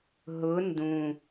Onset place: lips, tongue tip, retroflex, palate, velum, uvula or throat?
throat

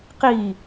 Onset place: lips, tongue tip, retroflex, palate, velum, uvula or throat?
uvula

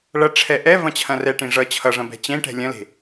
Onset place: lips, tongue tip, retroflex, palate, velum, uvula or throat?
retroflex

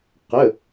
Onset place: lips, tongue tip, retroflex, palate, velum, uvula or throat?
uvula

